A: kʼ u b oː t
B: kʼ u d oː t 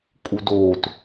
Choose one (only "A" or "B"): B